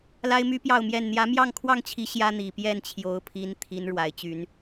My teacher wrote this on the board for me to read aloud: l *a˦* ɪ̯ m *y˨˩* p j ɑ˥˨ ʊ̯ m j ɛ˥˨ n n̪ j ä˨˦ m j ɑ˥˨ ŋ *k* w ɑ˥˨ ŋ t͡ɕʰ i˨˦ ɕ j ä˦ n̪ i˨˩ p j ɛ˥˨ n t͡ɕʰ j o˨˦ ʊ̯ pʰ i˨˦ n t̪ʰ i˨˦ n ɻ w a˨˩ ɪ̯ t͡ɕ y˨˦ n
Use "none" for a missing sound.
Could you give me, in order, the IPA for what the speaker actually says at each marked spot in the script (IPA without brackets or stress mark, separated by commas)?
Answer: a˦, y˦, kʰ